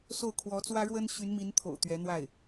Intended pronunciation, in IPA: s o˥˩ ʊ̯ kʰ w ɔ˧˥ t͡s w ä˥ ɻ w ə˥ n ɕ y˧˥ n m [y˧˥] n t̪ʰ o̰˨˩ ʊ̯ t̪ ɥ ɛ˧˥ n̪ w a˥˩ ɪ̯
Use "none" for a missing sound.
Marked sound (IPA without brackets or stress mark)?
i˧˥